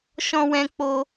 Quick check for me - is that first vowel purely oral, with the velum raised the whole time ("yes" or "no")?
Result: no